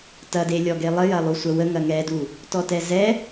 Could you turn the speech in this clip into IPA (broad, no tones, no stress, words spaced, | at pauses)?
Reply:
tɐdelʲɔ ɡelˠəjɐ lˠusʷɐwə ŋɐŋɛdu | tɔtɛzɛ